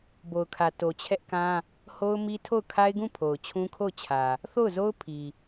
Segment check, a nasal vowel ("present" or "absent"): present